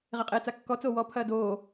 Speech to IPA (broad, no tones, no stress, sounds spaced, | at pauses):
ʁ e qʼ eː t͡s a kː ɔ t͡s oː w ɔ pʰ ɐː d oː